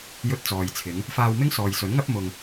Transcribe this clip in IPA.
j ɵ˧ t̚ t͡s ɔː˨ j t͡sʰ ɪ˨˧ ŋ | f aː˧ w m ɪ˥ ŋ s ɔː˨ j s ɵ˨˥ n ŋ ɐ˥ p̚ m ʊ˧ ŋ

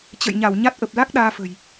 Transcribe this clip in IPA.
t͡ɕ ə̰˧˨ j ɲ a˧˩ w ɲ a˦˥ t̚ ʔ ə˨˩ p̚ l a˦˥ k̚ ɗ aː˧ f ə̤˨˩ j

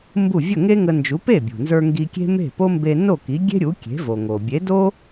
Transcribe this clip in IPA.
m b u˥˩ vʲ ə˥˩ ŋ e˥ ŋ ə˧ n d͡ʒ u˩˥ p e˥˩ bʲ ṳ˩ n z ə˞˧ ŋ ɡ i˧ kʲ e̤˥ m e̤˥˩ p o˥ m b e˧ n o˥˩ k i˩˥ ɡʲ e̤˥ ɾʲ u˩˥ kʲ e̤˩˥ v o˩ ŋ o˩ bʲ e˩˥ d o˥

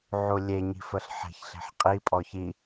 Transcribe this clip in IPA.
ʕ u lʲ e ɲ i̤ f ə ɬ ħ e̤ ç ɬ e̤ ħ qʼ i pʼ ɔ ç i

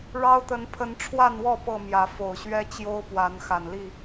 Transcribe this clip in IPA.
ɻ ɑ˦ ʊ̯ t̪ ə˨˦ n pʰ ə˨˦ n ʈ͡ʂʰ w a˥˨ n w ɔ˥˨ p ɤ˥˨ m j ä˨˦ f o˨˩ ʊ̯ ɕ ɥ ɛ˦ t͡ɕ j o˦ ʊ̯ p w a˨˦ n x a˨˩ n l i˥˨

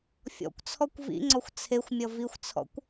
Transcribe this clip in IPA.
fʲ ɔ̰ kʷ t͡sʰ ɔ kʷ v ḭ ŋ͡ǀ ɔ xʷ t͡sʰ e xʷ mʲ ʌ v i xʷ t͡sʰ ɔ̰ kʷ

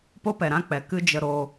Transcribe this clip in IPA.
p o˦ p ɛ˨ ɾ ã˦ k͡p ɛ˨ k ɨ˦ d͡ʒ ə˧ ɾ o˧

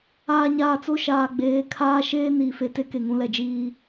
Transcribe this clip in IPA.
aː˨ ɲ aː˨ t͡s o˦ ʃ aː˨ ɡ͡b eː˨˦ kʰ aː˦ ʃ eː˦ n iː˨ f e˨ t e˦ k e˨ ŋ ũ˦ l ɛ˨ d͡ʒ iː˦

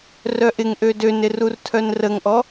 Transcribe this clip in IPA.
r œ ʔ ɪ ŋ ʔ ø d ø n ɪ r u r tʰ œ n r ə ŋ ʔ ɔ

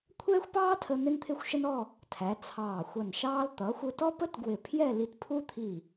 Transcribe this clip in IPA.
kʷʰ ɛː˥ xʷ p ɑː˥ tʰ ə˧ n̪ ɪ˥ n t̪ʰ ɪ˥˧ xʷ ʃ ə˥ n ɔ˥˧ | tʰ æ˩˧ t͡sʰ ɑː˧˩ xʷ ʌ˧˩ n ʃ ɑː˥ l t̪ ʌː˩˧ xʷ ʊ˧ t ɔ˥ p ə˥ t ɡ w ɪ˧˩ pʰ j ɛ˥˧ l i˧ t pʰ u˥ t̪ʰ i˧˩

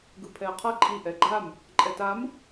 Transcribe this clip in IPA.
ɡ ɯ pʰ ɛ ə̯ qʰ ʌ ǃʼ i ʔ ɛ ɡ͡ǃ a m | ǃʼ ɛ t a m

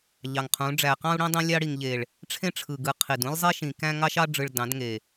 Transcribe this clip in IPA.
ʎ ɑ˨ ŋ qʰ ũ˨˦ ɖ͡ʐ æ˨ q ɑ̃˦ u̯ ɽ ĩ˦ dˤ ĩ˦ lʲ ɑ˦ ɽ i˨ ŋ ʎ e˨ ɭ | ʈ͡ʂʰ ẽ˦ ʈ͡ʂʰ ɯ˨ ɡ ɯ˨ qʰ i˨ d ũ˦ lʲ zˤ e˦ ʃ ĩ˨ k æ̃˦ ŋ ɑ˦ ʃ ɑ˦ ɖ͡ʐ ɯ˨ ɭ d ɑ̃˨˦ d ŋ e˨

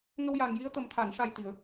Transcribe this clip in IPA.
ŋ ə˧ w j a˨˩ ŋ j i˧˥ ə̯ t̪ ə˨˩ m t̪ʰ a˨˩˨ n ʂ a˨˩ j t̪ i˨˩˨ ə̯

